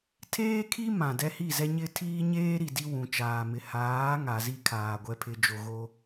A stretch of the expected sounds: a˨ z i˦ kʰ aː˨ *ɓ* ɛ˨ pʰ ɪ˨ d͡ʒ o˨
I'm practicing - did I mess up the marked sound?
yes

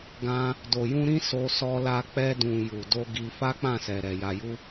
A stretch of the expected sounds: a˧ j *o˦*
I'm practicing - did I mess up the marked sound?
yes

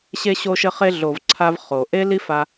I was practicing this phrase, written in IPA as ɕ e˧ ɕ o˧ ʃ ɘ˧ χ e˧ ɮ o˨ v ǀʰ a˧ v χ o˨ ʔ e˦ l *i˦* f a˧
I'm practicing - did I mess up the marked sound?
no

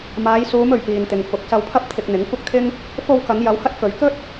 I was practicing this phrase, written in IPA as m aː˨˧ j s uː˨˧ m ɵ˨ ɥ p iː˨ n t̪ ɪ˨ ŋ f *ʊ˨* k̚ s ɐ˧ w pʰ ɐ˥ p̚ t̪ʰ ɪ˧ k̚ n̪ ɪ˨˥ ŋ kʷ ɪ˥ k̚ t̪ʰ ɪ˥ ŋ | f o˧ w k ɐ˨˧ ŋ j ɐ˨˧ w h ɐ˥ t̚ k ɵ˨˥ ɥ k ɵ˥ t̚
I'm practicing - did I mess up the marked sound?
yes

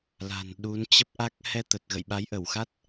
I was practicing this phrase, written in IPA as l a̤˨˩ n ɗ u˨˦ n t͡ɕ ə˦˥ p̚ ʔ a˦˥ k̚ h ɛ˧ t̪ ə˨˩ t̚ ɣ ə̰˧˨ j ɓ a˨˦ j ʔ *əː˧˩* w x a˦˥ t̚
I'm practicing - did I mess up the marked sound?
yes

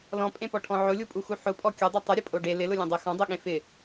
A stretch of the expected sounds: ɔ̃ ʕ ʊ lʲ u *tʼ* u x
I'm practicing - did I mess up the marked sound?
yes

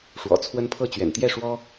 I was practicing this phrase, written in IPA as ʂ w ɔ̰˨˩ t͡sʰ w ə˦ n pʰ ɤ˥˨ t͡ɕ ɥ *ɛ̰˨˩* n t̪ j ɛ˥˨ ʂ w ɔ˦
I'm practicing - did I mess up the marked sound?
no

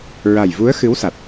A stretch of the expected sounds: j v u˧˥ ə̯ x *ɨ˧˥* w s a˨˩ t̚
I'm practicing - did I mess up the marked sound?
no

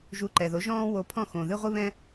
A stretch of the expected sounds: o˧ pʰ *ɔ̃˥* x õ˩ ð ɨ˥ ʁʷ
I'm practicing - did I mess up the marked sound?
yes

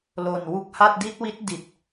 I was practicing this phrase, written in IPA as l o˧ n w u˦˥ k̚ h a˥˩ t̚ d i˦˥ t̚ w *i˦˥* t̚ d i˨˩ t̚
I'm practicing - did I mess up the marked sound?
no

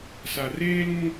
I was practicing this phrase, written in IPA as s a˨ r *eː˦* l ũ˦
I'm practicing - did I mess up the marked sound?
no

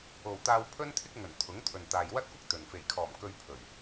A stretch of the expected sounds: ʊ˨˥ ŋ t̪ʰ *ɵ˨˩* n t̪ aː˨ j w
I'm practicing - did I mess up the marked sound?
yes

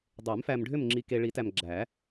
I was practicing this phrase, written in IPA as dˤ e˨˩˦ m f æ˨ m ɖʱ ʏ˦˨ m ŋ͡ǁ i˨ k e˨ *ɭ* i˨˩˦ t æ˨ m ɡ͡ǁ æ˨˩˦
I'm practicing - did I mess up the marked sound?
no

